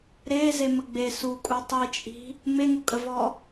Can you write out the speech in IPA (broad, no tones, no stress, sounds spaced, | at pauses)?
ɾ e z e m ə ɡ͡b e s u kʼ u tˤ i t͡ʃʼ i̤ | m e ŋ u kʼ ə v ɔ